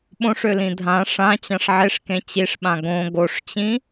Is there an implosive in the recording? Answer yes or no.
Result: yes